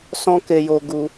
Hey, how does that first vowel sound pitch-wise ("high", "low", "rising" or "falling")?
high